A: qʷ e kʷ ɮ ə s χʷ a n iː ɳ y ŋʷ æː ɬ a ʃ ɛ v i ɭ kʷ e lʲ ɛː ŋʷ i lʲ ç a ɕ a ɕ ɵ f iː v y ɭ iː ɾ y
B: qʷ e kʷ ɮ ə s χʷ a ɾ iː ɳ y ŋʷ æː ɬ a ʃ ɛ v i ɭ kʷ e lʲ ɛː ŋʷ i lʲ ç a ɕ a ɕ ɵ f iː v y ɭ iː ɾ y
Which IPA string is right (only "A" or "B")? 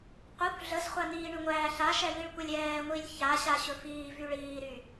A